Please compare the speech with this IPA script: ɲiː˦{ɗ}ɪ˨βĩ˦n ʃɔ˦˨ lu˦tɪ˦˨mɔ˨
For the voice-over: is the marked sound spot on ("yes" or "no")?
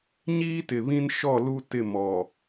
no